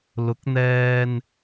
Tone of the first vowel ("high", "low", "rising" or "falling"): rising